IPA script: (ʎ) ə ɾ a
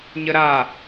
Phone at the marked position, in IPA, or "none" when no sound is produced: ɲ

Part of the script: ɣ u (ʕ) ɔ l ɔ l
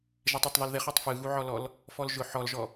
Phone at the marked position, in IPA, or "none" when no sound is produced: ʕ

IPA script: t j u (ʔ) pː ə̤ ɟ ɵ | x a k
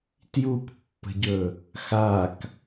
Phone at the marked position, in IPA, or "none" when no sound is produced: k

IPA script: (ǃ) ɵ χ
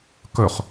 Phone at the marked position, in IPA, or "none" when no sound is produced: k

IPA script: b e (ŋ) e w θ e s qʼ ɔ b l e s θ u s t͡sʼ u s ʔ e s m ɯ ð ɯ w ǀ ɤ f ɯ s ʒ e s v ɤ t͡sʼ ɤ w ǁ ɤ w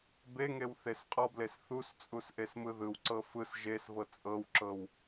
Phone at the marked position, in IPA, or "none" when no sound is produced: ŋ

